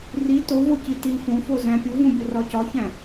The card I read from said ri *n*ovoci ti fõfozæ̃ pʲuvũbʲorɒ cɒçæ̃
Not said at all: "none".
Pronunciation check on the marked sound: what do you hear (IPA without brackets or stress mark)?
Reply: t